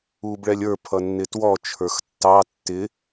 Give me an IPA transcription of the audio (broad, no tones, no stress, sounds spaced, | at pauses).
uː b ɭ ɛ lʲ ə˞ pʰ ʌ nː ɪ t w ɔ t͡ʃʰ ə˞ x tː ɑ tː ɪ